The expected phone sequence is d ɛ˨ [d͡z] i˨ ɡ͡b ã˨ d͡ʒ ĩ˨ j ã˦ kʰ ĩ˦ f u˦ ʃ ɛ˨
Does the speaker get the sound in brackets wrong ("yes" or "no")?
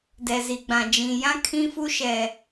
yes